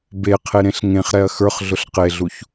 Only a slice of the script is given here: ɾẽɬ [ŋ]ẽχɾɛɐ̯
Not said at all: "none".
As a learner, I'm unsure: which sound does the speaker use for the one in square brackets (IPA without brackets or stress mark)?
ŋ